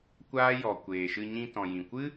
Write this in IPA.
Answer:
kʷaː˦jɔ˨ kʷeː˨ʃɨ˧ ɲĩ˧ tɔ̃˨jĩ˨ kʷɨ˦

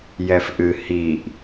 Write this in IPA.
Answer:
jɛfʔɨ hiʔ

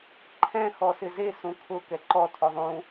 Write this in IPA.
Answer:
ǃʰɛ̃ xɔsɪze sũkʰʊ kɛǃɔ tʰoðˤũ

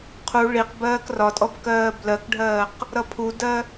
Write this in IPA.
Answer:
qʰu ɭiq bɜːkrɒtʼɔb kɜːblɜkɖʱɜːq | ɾʌpʰudɜ

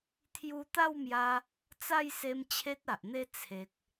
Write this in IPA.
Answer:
t̪ʰju˧t̪a˥˧wmja˧ | t͡sa˥˧jse˧m t͡ɕʰe˦t̚a˨ʔn̪e˦ t͡sʰe˨k̚

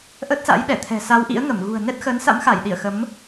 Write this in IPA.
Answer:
ʔə˦˥t̚sa̰˧˥jɗɛ˧˩t̪ʰɛ̤˨˩ sa˨˦wʔḭ˧˥ə̯ ŋə˧˩m ɣṳ˨˩ə̯nɛ˦˥t̚xə˨˦n sa̰˧˥mxa˧˩jɗi˧˩ə̯ xə˨˦m

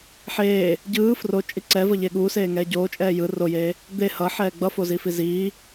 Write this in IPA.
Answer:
ħeː | ɟɯː frot͡ʃʼi ǀɛvʌʎe ɠuːseːŋɛː ɟoːt͡ʃʼɛː jɯ rojeː | d̪e hʌħɛː ɡ͡bʌfozifi ziː

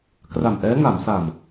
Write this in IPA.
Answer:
kra˨˩mʔɛː˦˥ŋa˩˦msa˨˩m

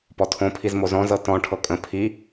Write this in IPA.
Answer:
pɔtʰõpʰiz mozɔ̃zɤ tɔ̃ʈʰɤ kʼə̃ pʰi

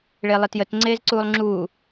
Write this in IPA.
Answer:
ɭelˠetjət ŋ͡ǀeːzǀuːlˠŋ͡ǁuː

